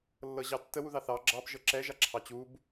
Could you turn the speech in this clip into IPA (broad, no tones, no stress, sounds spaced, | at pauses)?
lː ɤ ʑ ɑ tː ə w u ð ɑ θ ɑ ɡ͡ǁ ɑ b ʒ ɤ ǁ ɛ ʒ a ǁʰ ɑ t͡ɕ u b